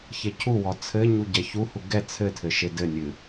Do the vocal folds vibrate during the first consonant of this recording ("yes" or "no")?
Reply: no